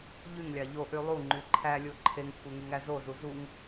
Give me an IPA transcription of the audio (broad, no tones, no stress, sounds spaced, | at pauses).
ʎ y ŋ lʲ ɑ ʎ o ʔ y lˠ u ŋ͡ǃ y ǃʰ æ lʲ o ǃʰ e ŋ kʷʰ e ŋ y ŋ æ z o z u z u ŋ